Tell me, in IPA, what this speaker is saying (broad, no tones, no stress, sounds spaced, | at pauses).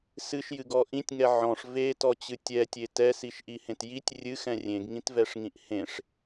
s ɨ ʃ j ɨ ɡ ɔ ʔ ĩ tʲ ŋ ɛ ʕ ɔ̃ ʂ v e t ɔ t͡ɕ ɨ tʲ ɛ tʲ e t ɛ s i ʃ ʔ i h ẽ t j i tʲ rʲ ɨ x ɛ̃ rʲ ẽ ɡ ŋ ĩ t v ɛ ʂ ŋ ĩ ʔ h ẽ ʂ